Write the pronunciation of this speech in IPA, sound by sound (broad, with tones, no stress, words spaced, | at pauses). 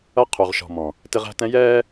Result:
ʌ˦ qʰu˨ʁ ʃɔ̤˨mɔ̃˨ | tɪ˦ʁæ̤˦tɛ̃˦ jɛː˦